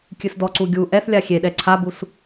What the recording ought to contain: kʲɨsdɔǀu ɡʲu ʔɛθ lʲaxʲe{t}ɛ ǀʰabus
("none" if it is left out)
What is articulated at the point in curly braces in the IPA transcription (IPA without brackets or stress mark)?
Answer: ɗ